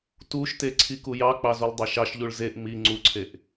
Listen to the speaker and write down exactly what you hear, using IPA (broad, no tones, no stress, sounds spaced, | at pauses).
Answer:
t u ʃ t e ǀʰ i k u j ɑ k͡p ɑ z u lˠ dˤ ɑ ʃ ɑ ʃ ʎ u ɭ z e ʔ m i ŋ͡ǀ u ǀʰ e ʔ